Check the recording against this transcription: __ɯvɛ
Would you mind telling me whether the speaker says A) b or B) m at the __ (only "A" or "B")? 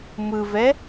B